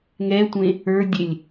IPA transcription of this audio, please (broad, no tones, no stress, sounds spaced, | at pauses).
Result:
ŋ ɛ tʷ ẽ | ə˞ dʲ e lʲ